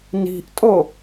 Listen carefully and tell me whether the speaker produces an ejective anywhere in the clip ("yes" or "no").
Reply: yes